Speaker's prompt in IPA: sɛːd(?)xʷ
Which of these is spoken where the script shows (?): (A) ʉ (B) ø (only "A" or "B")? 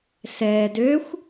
B